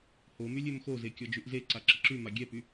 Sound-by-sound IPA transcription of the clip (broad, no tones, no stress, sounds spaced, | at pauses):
h o m y lʲ ø m x o z e kʲ ɔ d͡ʒ y ʔ z e ǀ a ǁ ə ǁ y m a ɡʲ ɛ p y